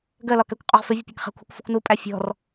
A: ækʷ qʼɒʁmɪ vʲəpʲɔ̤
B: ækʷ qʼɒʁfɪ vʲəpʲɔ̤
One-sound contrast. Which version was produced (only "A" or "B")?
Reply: B